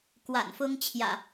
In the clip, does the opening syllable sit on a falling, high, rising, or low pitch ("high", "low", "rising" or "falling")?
low